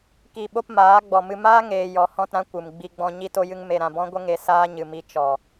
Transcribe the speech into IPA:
k i˨ ɓ o˦ p m aː˨˦ ɡ͡b ɔ˨ m ɨ˧ m aː˦ ŋ eː˨ j ɔ˨ h ɔ̃˦˨ t ɾ ã˧ kʷ ɨ˨ m ɡ͡b i˧ ɡ͡b ɔ̃˧ ɲ i˧ t o˧ j ɨ˧ ŋ m e˨ ɾ ã˨ b ɔ̃˦ ɡʷ ə˧ ŋ e˨ s aː˦ ɲ ɨ˨ m i˧ t͡ʃ ɔ˨

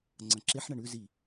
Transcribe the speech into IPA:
ŋ͡ǀ ɐ̃ ǁ e ħ ɳ ɐ ɳ ʉ z i

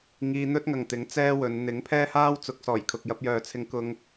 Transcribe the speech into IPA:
ŋ iː˧ n̪ ɵ˥ t̚ ŋ ɐ˨ ŋ t̪ ɪ˨˥ ŋ t͡s ɛː˥ w ɵ˨˧ n n̪ ɪ˨˥ ŋ pʰ ɛː˥ h aː˥ w t͡s ʊ˨˥ k̚ s ɔː˨˩ j kʰ ʊ˨ k̚ j ɐ˧ p̚ j œː˨ t͡sʰ ɪ˧ ŋ k ʊ˧ ŋ

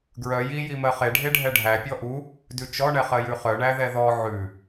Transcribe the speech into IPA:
ɡ ɹ œ j i j i m ɜ χ e ɖʱ e ɖʱ ɛ ɖʱ æ pʲ ɔ ʔ u | d ʉ t͡ʃ ɔ ɳ ɛ χ ɜ j ʉ χ œ ɳ æ ð ɛ ð ɔ ʕ ʉ

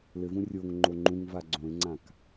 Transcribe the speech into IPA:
l ɘ v ũ rʲ o ŋ ŋ͡ǃ o ŋ͡ǃ ũ ŋ v a ɡ͡ǀ õ e̯ ŋ͡ǀ ã k

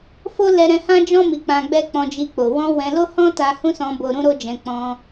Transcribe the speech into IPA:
f o˦ l ɛ˧ ɾ ɛ̃˧ h ã˦ d͡ʒ ɔ̃˦ m i˧ k͡p ã˧ ɡ͡b ɛ˦ k͡p ɔ̃˧ d͡ʒ i˧ k͡p o˨ w ɔ̃˧ w ɛ̃˧ l o˦ h ɔ̃˦ t a˧ h ũ˦ s ɔ̃˧ b o˧ ɾ ũ˦ ɾ o˦ d͡ʒ ɛ̃˧ k͡p ɔ̃˧

